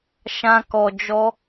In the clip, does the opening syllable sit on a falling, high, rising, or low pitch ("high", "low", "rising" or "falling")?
high